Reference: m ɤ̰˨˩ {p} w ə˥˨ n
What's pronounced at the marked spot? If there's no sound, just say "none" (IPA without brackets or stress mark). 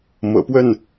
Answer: p